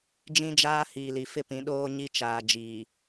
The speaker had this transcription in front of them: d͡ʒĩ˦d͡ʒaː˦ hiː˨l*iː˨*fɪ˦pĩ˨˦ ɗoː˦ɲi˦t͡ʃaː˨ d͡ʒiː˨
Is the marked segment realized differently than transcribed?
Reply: yes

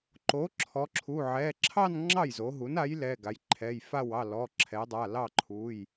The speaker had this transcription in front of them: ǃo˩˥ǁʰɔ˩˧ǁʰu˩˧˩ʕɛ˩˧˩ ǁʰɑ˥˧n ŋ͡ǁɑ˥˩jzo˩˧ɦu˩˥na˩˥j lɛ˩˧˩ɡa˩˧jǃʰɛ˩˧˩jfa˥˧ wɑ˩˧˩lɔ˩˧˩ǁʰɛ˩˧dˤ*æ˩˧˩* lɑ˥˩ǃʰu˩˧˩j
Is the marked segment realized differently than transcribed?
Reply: yes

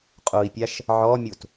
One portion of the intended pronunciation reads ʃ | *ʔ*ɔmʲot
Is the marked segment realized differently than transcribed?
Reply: yes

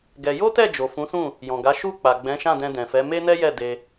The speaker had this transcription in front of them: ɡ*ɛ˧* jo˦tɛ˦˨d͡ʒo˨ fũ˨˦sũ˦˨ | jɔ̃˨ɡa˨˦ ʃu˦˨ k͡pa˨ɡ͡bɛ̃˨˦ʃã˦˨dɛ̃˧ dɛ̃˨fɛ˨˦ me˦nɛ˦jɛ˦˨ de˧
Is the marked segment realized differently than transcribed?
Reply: no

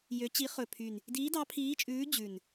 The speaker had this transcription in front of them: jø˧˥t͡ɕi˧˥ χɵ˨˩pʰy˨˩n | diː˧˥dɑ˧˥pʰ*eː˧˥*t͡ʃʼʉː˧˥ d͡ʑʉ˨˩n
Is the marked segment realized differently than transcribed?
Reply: yes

